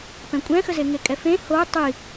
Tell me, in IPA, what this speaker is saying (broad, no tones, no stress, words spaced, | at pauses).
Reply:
pɛ̃kʷʼɛ̃xəze ŋekʼɛfẽ ho tˤi